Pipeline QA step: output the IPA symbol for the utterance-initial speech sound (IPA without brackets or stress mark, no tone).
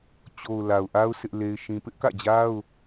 t͡ɕ